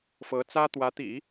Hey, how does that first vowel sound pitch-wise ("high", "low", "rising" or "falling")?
rising